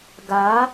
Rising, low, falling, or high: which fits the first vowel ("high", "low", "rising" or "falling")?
rising